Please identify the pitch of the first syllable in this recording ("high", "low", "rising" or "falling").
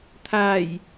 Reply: low